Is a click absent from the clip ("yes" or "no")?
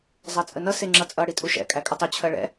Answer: no